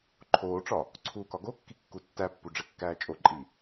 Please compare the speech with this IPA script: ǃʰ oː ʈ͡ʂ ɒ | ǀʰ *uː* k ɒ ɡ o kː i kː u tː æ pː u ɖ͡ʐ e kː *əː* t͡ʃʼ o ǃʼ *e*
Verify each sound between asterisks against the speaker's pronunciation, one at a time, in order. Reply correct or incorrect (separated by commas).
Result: correct, incorrect, incorrect